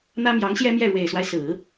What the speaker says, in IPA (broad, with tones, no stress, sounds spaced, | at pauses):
n̪ ä˥ m j ɑ˧˥ ŋ ɕ j ɛ˥ m j ɛ˥˩ ɻ w e˨˩ ɪ̯ s w a˦ ɪ̯ s ɹ̩˨˩˦